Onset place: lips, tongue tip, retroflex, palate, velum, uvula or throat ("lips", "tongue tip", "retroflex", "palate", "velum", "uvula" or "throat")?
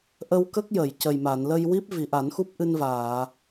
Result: throat